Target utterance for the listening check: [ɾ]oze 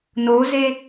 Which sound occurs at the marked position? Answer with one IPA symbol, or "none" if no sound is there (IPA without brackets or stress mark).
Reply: n